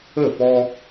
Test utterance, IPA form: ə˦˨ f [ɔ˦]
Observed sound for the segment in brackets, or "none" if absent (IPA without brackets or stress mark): ɔ˦